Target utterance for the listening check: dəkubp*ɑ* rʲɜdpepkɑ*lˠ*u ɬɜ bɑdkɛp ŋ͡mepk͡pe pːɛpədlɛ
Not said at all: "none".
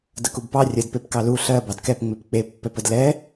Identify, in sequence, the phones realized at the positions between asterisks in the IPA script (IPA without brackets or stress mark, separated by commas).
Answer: ɑ, l